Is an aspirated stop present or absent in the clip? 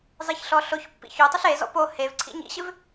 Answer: present